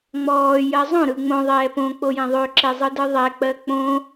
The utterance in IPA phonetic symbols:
ŋ͡m ɔː j ɜ zˤ õ ɾ ɯ ŋ͡m õ ðˤ ɛː p õ k͡p o j ɛ̃ ðˤ ø ǁ e zˤ ɯ d ɯ ðˤ ɛ k͡p ɜ k͡p õ

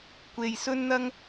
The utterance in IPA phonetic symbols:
kʷ e˨ j s ɵ˥ n n̪ ɐ˥ ŋ

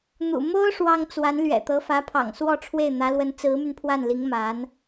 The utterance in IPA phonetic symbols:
n̪ ṵ˨˩ m o˥ ʊ̯ ʂ w ɑ˥ ŋ t͡s w a˧˥ n l ɥ ɛ̰˨˩ t̪ ɤ˧˥ f ä˧˥ pʰ ɑ̰˨˩ ŋ s w ɔ˥˧ ʈ͡ʂʰ w e˥˩ ɪ̯ n̪ ä˧˥ l w ə˧˥ n t͡s ɹ̩˧˥ m y˧ n pʰ w a˥˩ n l i˧˥ ŋ m a˧˥ n

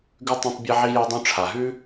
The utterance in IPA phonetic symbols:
ɡ ʉ˥ tˤ ẽ˥ tˤ bʲ e˥ ʕ i˥ j o˥ dˤ õ˥ ʈ͡ʂʰ a˨ ɦ ʉ˥

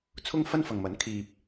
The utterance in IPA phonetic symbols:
t͡sʰ ʊ˥ ŋ f ɐ˥ n f ɐ˨ ŋ m ɐ˨˥ n kʰ iː˨ p̚

